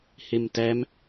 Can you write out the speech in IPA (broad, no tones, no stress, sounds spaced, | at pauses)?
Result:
h e m t æ m